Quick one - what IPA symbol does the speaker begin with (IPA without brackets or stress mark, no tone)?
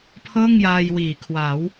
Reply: pʰ